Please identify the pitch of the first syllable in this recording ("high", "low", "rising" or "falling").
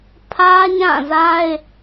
high